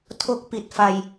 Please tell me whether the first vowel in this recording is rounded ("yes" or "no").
yes